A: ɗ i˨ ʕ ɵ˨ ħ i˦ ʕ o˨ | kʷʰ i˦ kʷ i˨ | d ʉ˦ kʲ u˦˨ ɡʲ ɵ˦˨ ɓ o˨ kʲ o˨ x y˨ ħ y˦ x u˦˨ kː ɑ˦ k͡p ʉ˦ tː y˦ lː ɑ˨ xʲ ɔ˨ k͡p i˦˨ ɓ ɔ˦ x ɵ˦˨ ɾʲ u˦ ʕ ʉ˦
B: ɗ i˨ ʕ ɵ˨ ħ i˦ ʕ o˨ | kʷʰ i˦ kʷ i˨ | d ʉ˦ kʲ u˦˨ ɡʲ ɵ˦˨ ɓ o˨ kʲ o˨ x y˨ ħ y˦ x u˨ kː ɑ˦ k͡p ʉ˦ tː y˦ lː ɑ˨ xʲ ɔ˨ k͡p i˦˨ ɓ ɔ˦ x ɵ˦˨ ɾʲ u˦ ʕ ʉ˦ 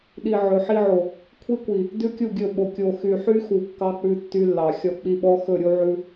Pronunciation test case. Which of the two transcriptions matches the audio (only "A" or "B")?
B